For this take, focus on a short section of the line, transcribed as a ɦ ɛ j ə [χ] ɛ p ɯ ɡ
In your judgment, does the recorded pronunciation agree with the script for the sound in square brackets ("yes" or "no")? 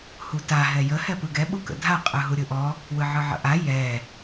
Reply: no